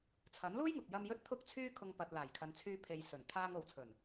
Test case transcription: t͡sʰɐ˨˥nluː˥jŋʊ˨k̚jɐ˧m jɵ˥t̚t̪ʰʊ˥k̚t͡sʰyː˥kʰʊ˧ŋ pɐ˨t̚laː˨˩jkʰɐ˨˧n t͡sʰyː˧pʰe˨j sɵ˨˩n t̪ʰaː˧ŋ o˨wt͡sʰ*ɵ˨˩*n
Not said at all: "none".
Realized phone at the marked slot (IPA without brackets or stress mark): ɵ˨˩